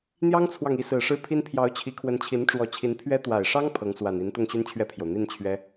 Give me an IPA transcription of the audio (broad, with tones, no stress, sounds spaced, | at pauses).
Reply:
n̪ j ɑ˥ ŋ t͡sʰ w ɑ˨ ŋ i˧˥ s ɹ̩˨˩ ʂ ɻ̩˥˩ pʰ i˥ n pʰ j ɑ˧˥ ʊ̯ t͡ɕʰ i˧˥ kʰ w ə˧˥ n t͡ɕʰ i˧˥ n ʈ͡ʂ w ɔ˧˥ t͡ɕʰ i˧˥ n pʰ ɥ ɛ˥ t̪ w a˨˩ ɪ̯ ʂ ɑ˥ ŋ pʰ ɤ˧˥ ŋ s w a˨˩ n i˧˥ n t̪ ʊ˥˩ ŋ ɕ y˥ n t͡ɕʰ ɥ ɛ˥˩ pʰ j o˩ ʊ̯ n̪ i˥˩ n t͡ɕʰ ɥ ɛ˥